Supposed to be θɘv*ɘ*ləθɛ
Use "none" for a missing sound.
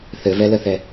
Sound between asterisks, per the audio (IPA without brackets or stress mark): ɛ